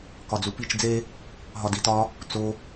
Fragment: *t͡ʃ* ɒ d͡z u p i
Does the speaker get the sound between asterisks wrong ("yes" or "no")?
yes